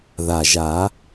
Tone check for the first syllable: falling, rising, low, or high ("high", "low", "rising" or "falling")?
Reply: low